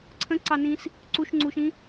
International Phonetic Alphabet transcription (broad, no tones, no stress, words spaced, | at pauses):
ǀʰə̃ǀɑnĩs | ǀuʃŋ͡ǀuʃĩ